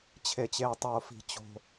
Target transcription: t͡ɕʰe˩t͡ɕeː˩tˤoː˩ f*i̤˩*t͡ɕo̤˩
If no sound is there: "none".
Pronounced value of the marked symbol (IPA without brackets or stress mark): i̤˩